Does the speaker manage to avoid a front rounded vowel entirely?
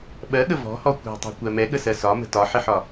yes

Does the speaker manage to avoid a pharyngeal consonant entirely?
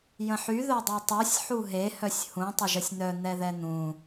no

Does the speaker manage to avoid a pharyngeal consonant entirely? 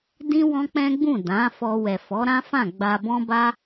yes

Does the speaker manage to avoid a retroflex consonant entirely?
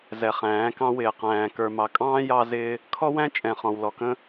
yes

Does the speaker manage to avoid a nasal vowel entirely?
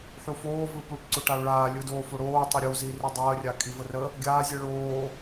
yes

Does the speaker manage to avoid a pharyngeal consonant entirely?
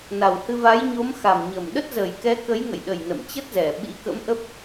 yes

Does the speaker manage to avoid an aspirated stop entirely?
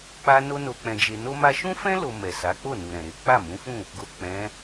yes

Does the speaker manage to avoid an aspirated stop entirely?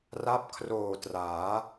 no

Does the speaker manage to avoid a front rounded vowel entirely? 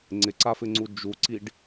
yes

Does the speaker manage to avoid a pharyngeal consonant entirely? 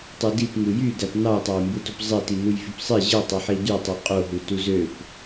no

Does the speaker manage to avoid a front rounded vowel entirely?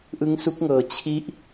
yes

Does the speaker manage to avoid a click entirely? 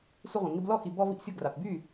yes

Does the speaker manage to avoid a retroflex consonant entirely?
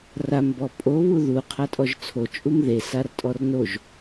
yes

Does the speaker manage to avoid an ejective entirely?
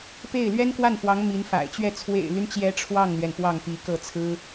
yes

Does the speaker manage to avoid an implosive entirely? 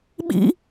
no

